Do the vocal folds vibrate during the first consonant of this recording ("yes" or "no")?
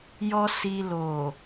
yes